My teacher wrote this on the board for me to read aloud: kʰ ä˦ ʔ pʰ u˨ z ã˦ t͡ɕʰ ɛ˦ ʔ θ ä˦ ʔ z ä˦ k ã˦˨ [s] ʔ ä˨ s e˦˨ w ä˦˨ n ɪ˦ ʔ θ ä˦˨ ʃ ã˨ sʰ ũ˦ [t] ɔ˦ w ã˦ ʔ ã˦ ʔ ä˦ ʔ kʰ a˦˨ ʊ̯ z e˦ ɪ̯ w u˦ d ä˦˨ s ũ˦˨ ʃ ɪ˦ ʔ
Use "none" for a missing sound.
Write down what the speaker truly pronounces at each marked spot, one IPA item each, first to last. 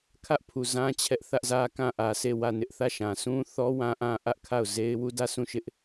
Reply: none, θ

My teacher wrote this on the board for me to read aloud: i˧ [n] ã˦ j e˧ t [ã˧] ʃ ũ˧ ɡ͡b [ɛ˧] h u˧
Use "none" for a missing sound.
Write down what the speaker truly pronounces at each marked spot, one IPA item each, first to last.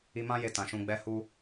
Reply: m, ã˨, ɛ˧

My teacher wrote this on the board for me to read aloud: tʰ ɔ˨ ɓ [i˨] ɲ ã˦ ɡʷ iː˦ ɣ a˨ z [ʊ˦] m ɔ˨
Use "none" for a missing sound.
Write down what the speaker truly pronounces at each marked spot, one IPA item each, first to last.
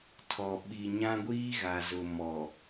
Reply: i˨, ʊ˨

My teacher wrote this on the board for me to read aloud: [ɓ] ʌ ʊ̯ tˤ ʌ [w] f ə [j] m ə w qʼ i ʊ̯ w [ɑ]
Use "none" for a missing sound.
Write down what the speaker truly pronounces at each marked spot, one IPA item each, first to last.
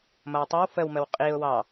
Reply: m, w, w, ɑ

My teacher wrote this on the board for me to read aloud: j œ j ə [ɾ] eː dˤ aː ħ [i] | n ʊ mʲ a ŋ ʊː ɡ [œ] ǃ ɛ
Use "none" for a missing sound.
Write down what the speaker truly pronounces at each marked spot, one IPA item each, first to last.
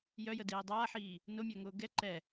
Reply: d, iː, ɛ

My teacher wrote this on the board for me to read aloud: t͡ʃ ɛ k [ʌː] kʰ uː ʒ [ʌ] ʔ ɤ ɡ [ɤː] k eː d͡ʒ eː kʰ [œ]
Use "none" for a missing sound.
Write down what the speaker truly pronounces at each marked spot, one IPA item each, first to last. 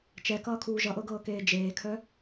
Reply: ʌː, ʌ, ɤː, œ

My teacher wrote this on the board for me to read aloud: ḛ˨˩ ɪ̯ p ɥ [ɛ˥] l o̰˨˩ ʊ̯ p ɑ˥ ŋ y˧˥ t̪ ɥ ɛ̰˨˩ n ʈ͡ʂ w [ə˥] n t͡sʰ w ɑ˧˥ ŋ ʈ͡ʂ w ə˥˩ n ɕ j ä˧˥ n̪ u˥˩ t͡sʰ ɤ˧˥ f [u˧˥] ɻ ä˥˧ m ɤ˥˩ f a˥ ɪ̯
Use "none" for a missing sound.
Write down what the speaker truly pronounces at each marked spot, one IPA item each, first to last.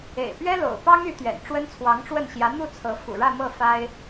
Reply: ɛ˥, ə˥, ṵ˨˩

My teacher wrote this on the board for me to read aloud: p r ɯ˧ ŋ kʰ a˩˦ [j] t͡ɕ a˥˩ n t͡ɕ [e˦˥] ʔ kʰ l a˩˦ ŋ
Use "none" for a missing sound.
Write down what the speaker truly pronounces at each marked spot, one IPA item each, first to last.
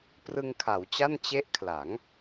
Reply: w, e˦˥

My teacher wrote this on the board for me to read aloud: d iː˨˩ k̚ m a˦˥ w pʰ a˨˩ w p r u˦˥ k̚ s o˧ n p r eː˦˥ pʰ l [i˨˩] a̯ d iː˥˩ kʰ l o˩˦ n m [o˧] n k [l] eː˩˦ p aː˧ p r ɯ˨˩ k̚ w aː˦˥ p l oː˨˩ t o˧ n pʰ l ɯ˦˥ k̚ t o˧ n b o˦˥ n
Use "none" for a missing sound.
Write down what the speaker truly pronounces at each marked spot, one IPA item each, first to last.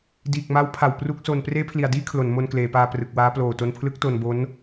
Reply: i˨˩, o˧, l

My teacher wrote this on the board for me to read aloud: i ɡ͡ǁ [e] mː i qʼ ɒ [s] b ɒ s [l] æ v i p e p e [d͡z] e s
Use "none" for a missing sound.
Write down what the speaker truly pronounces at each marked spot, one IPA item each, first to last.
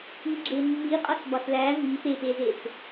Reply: e, s, l, z

